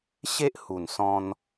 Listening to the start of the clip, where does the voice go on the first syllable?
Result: high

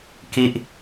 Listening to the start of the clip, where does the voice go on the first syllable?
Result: falling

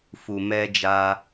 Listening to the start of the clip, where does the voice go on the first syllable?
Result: low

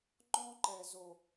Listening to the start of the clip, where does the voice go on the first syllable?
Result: high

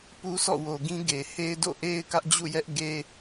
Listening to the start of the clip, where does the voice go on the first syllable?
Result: high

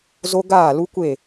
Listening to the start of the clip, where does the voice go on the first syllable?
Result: high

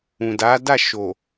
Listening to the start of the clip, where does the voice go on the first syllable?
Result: low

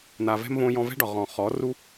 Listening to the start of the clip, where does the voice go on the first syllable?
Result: low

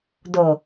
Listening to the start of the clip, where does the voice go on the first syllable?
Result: low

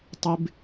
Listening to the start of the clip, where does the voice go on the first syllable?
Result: high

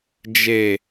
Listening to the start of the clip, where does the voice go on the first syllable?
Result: low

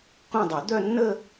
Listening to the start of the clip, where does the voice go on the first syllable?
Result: falling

